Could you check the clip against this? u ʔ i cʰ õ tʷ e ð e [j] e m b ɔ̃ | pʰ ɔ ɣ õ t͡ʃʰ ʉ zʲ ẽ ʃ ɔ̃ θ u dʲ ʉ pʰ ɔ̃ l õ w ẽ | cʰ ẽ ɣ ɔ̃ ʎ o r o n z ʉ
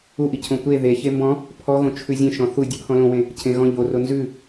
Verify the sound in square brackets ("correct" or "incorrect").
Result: incorrect